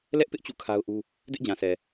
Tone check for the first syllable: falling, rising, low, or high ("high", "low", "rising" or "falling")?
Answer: high